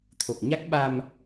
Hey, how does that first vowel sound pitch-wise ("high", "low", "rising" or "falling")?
low